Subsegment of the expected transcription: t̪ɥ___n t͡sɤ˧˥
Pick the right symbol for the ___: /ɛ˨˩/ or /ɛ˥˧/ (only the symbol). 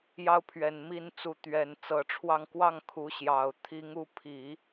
ɛ˨˩